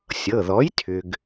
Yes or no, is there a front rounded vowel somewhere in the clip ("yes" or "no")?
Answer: yes